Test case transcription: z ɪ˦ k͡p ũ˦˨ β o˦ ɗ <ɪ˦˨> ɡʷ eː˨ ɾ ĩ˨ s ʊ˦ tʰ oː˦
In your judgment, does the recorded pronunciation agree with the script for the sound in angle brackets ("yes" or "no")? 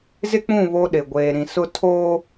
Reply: no